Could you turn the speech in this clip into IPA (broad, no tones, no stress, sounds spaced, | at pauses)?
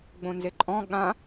ɡ͡b õ n z e ǃʼ ɔ̃ ɠ ã